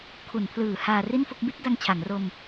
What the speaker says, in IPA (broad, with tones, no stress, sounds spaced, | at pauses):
kʰ u˩˦ n pʰ l ɯː˩˦ h aː˧ r i˥˩ n f o˥˩ k̚ b i˦˥ t̚ d a˧ ŋ t͡ɕʰ a˩˦ ŋ r o˧ m